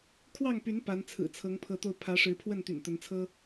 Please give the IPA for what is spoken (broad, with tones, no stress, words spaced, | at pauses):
kʰwɑ˥˨ŋpy˨˦n pa˨˦n t͡sʰɹ̩˨˩t͡sʰɤ˨˦ŋpʰɤ˨˦t̪o˧ʊ̯ pʰä˨˦ʂɻ̩˨˦ pʰwə˥˨nt̪y̰˨˩nt̪ə˨˦nt͡sʰɤ˦